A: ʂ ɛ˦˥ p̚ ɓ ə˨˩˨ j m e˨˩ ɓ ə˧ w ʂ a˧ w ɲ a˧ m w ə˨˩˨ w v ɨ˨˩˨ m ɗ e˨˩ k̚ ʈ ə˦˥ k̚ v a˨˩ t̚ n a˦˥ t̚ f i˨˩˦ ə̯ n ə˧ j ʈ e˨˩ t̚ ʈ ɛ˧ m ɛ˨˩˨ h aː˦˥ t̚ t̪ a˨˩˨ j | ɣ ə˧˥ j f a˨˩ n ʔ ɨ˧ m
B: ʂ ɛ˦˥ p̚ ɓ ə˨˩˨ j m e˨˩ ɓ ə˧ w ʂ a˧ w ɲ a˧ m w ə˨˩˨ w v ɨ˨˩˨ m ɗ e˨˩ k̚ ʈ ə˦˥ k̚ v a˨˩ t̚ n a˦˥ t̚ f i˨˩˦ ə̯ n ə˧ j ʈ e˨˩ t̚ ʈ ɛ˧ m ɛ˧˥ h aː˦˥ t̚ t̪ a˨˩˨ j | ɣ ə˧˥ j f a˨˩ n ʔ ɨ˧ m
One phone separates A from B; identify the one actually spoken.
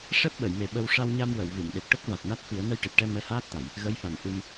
B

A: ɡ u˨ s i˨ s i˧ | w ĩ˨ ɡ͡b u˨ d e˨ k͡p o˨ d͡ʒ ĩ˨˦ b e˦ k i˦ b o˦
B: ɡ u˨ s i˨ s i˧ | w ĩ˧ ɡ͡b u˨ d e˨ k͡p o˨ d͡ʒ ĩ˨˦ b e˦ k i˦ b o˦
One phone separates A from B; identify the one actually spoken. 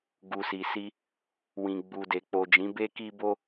A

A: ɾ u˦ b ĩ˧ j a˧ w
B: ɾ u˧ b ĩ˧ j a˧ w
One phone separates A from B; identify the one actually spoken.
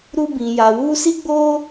A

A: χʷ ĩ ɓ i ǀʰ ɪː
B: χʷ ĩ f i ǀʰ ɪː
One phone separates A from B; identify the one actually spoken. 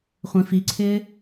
B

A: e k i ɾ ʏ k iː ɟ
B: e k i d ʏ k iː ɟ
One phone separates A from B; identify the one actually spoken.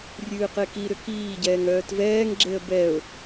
A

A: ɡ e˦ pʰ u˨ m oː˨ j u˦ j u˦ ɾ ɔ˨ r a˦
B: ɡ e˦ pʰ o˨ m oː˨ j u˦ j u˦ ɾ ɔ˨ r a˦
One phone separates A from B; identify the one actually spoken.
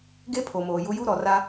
B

